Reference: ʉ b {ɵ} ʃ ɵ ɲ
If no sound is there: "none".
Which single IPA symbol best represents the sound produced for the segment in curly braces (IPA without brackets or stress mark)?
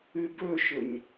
ɵ